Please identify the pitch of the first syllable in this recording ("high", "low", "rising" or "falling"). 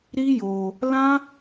high